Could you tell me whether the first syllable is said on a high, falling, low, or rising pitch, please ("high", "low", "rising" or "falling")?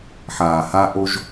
low